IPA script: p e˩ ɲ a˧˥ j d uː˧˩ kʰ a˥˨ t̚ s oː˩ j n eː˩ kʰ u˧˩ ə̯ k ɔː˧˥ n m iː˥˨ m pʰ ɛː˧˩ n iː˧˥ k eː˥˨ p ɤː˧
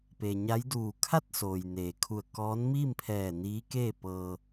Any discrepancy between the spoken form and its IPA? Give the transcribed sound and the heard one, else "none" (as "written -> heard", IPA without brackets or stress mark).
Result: none